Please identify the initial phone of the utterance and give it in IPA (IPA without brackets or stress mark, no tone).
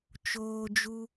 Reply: t͡ʃ